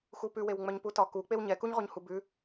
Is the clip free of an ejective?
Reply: yes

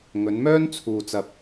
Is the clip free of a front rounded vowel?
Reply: no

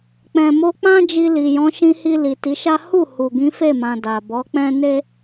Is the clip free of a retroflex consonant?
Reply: yes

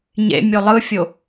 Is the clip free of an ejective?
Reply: yes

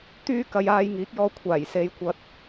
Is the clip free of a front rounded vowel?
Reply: no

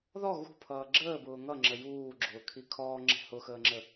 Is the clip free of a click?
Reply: no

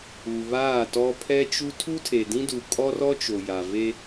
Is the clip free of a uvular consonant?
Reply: yes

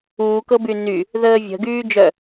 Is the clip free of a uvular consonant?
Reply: yes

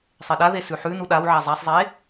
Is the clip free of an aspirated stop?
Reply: yes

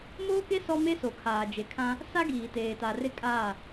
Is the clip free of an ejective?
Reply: no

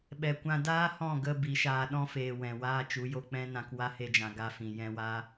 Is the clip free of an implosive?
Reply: no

